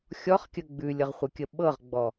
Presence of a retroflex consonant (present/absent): absent